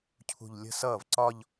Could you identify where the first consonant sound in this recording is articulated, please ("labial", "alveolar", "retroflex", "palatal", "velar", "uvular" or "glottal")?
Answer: palatal